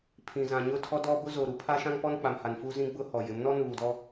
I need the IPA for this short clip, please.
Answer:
pʰ ĩ˨ z ã˨ ɲ ʊ˦˨ tʰ ɔ˦ d ɔ˦ b ʊ˦ z o˨ ɾ u˨ pʰ a˦ ʃ ã˦ ŋ p ɔ˦ n k͡p a˨ m h a˨ n f u˦ z ĩ˦ ɡ͡b ʊ˦ h ɔ˨ j ɪ˨˦ m n ɔ˦ n uː˨ d ɔ˦

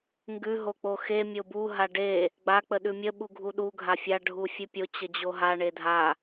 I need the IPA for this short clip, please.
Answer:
ŋ ɡ ʉ ɦ o k͡p o x e mʲ o b u ɦ a ɖ e | ɡ͡b a k͡p ə ɗ ʉ mʲ ə ɓ u ɡʱ u ɗ u ɡʱ a fʲ a ɖʱ u fʲ ʉ pʲ o t͡ɕ ə d͡ʑ o ɦ a ɳ e dʱ a

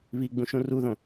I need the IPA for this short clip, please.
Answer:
β i ɡ͡b ũ ʃ ũ r u ð õ

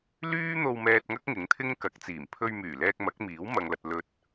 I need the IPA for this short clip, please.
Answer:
l yː˥ n̪ o˧ w m ɛː˧ t̚ ŋ ɐ˥ k̚ ŋ ɪ˨˥ ŋ t̪ʰ ɪ˥ ŋ k ɐ˨˥ k̚ t͡s iː˨˩ m pʰ ɵ˧ ɥ m yː˨˩ l ɛː˧ k̚ m ɐ˨˥ k̚ m iː˨˥ w m ɐ˨ ŋ l ɐ˨ t̚ l ɵ˨ t̚

